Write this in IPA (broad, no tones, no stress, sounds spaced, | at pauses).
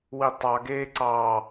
w i tˤ ɑ ɡ eː ǀ ɑ